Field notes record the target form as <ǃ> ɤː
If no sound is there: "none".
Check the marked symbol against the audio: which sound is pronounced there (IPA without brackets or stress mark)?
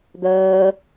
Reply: d̪